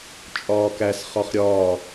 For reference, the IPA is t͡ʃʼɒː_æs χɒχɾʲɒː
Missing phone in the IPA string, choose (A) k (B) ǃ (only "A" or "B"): A